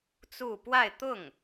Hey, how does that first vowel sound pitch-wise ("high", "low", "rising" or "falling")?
falling